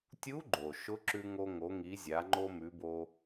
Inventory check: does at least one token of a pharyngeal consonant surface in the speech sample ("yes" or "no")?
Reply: no